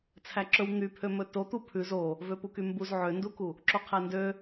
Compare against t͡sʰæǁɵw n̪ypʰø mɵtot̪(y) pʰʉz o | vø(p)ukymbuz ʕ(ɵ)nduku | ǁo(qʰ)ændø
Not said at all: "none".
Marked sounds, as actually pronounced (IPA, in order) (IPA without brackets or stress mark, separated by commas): u, p, ø, qʰ